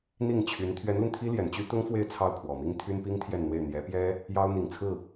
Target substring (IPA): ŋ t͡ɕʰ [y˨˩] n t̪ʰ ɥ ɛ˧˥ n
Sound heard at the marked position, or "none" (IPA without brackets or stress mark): y˧˥